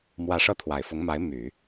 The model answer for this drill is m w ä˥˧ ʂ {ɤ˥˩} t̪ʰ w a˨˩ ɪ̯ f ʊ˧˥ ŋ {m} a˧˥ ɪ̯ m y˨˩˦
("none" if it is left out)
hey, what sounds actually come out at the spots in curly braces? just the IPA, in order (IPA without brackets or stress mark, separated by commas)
ɤ˥˩, m